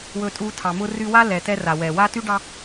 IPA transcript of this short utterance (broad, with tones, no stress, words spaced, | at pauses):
wɵ˦tʼu˦tʰɑ˨mʊ˥ ry˦wa˥ lɛ˨tɛ˦ra˩ wɛ˩wa˥ ty˥ɖɑ˦